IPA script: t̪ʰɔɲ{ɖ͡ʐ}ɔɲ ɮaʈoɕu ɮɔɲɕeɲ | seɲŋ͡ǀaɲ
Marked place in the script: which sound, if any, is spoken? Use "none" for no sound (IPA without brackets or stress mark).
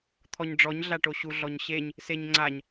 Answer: ɖ͡ʐ